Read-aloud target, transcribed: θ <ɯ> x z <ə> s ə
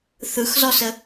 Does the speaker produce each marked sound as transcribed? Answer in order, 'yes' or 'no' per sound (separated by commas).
yes, no